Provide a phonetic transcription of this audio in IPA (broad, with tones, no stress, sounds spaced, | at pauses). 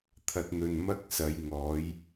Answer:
t̪ʰ ɐ˨ t̚ n̪ ɵ˨ n m ɐ˥ k̚ s ɐ˨˧ j ŋ ɔː˨˥ j